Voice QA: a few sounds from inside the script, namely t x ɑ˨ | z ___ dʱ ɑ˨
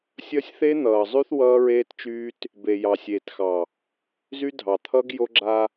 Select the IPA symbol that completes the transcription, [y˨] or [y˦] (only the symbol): y˦